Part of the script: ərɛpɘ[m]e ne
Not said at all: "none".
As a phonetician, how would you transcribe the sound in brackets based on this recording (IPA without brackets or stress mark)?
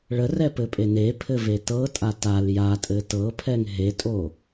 pʼ